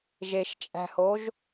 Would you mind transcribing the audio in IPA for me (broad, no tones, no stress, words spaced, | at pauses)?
ʒeʃt͡ʃʼæ̤hoʒ